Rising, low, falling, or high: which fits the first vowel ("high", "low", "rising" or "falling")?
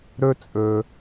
high